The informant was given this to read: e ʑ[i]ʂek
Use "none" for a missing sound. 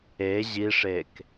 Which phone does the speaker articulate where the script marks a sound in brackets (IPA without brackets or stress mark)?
i